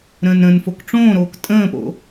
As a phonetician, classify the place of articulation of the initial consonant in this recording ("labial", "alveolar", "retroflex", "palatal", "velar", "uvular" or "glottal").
alveolar